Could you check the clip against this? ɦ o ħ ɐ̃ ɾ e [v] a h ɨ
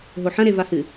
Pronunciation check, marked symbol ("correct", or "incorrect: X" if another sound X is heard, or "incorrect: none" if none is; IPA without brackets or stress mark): correct